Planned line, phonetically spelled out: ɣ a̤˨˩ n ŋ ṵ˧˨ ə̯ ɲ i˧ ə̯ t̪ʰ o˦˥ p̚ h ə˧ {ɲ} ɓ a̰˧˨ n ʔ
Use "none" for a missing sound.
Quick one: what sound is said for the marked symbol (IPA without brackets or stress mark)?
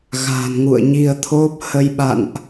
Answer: j